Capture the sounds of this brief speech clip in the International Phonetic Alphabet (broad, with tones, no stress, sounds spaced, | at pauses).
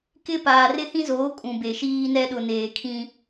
k ɪ˦ p aː˨ r ɪ˦ h ĩ˦ z oː˨˦ kʼ ũ˨ b e˨ ʃ iː˦ n ɛ˦ ɗ ʊ˨ n eː˨ kʰ ĩ˦